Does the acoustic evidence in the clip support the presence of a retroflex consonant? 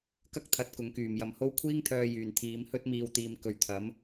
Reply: no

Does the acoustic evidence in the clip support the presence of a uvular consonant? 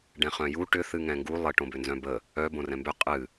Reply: yes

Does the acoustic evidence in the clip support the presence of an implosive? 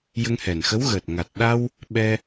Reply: yes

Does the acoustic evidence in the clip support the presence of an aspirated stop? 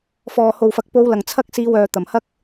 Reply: yes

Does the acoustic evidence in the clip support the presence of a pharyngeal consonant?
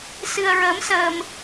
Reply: no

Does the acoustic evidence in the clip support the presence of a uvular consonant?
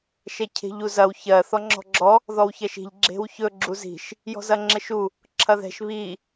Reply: no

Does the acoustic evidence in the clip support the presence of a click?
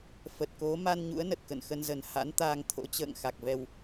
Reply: no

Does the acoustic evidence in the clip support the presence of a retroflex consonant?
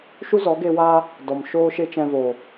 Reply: no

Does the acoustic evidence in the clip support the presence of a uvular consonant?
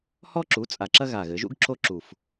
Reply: no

